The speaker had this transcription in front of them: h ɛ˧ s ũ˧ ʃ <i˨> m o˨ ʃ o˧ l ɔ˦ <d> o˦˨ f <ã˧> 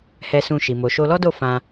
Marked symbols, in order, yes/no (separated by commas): yes, yes, yes